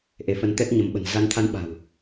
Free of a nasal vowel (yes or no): yes